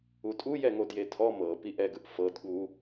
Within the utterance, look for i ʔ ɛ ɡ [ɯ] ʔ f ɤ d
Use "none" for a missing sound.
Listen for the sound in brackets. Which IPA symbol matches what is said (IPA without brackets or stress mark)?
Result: ɯ